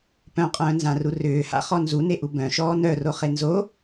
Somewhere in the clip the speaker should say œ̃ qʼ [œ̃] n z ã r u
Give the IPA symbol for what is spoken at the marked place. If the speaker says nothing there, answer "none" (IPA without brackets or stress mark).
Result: œ̃ː